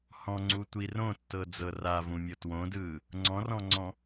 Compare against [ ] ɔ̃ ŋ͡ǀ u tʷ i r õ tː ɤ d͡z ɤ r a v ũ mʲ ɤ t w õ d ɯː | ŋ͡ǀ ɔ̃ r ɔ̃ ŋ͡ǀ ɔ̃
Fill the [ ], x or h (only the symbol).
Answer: h